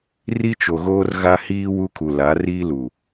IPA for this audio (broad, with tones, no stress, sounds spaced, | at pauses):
r i˦ t͡ʃ o˨ ɣ oː˦ r ɣ a˦ h iː˦ w u˦ kʰ u˨ l a˨˦ r iː˦ l u˨